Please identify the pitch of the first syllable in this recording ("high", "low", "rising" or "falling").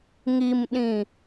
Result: low